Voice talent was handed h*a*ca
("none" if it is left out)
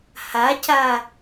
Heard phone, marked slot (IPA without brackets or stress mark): a